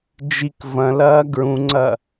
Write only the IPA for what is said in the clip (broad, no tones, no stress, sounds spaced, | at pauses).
d͡ʒ i k v ɐ̃ l ɐː ɡ ɹ ũ ŋ͡ǀ ɐ